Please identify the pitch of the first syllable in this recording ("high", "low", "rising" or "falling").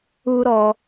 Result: high